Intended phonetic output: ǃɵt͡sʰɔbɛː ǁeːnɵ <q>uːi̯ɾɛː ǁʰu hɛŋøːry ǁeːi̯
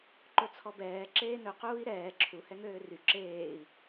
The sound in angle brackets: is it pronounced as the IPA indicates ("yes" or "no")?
yes